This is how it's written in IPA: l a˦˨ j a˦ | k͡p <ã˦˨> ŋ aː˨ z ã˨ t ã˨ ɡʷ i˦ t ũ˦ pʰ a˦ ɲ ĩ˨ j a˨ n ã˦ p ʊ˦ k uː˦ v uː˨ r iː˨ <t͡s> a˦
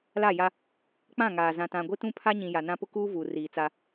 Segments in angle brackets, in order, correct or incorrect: correct, correct

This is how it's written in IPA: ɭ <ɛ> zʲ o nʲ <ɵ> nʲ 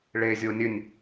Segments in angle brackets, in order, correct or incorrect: incorrect: e, correct

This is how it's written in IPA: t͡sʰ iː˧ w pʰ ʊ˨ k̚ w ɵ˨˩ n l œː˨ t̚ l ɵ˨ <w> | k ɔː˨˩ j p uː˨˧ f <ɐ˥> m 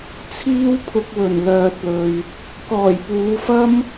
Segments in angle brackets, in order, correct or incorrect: incorrect: ɥ, correct

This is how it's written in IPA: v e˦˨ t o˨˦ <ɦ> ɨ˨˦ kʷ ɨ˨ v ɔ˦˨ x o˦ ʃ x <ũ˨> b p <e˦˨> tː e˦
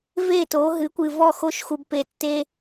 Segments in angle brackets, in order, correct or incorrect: correct, incorrect: u˨, incorrect: e˨

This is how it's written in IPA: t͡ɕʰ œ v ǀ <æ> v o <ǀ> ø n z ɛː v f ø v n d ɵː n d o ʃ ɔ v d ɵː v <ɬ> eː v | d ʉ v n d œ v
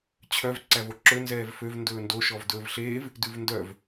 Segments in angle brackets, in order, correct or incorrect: correct, incorrect: ǁ, correct

